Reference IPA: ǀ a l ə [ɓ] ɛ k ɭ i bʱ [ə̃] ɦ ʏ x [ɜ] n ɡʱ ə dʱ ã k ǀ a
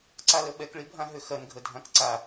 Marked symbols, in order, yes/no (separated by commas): yes, no, yes